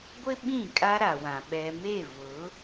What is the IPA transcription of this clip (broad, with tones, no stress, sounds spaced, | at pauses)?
ɡʷ ɪ˦ ɓ ĩ˦˨ kʼ a˦ ɾ a˨ w ã˨ ɓ ɛ˨ m e˦˨ v ʊ˨˦